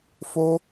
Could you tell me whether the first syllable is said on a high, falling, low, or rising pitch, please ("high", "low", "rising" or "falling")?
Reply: high